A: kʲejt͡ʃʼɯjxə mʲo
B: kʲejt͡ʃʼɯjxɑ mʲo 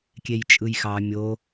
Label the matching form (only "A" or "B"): B